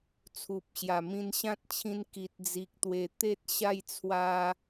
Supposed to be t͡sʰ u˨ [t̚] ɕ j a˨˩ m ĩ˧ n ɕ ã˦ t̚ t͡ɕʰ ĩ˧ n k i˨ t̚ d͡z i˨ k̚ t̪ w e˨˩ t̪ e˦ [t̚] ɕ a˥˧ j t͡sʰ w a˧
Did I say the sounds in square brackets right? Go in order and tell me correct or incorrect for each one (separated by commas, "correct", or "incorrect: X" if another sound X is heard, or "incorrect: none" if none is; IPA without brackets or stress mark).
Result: incorrect: p̚, correct